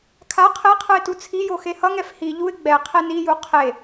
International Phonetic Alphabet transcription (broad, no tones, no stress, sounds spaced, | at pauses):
kʰ a qʰ e qʰ ɯ ɪ̯ t u t͡sʰ i j o x e h ʌ ŋ ɛ f h i ʎ u ɪ̯ ɡ͡b ɛ qʰ e n i j u qʰ e